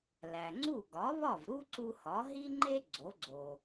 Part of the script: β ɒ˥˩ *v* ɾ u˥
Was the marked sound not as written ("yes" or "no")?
no